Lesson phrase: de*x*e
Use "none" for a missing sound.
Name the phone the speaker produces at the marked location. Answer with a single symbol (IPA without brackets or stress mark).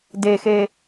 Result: x